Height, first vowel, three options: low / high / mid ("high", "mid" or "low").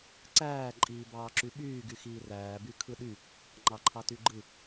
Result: low